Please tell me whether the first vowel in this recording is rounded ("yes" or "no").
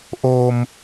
yes